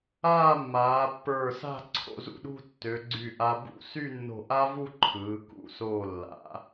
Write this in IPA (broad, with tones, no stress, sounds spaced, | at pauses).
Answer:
aː˥˧ mː aː˩˧ pː ə˞˧˩ s a̤˥˧ ǀʰ o̰˧ z ṵ˧˩ ɗ ṳ˥˧ tː ø˩˧ ɡ͡ǀ y˧˩ ʔ a˧ b ṵ˥˧ s y˥˧ nː o̤˧˩ ʔ a˥ v u˥˧ ǃʰ ɯː˩˧ k ṵ˧˩ s oː˧˩ lː a̰˩˧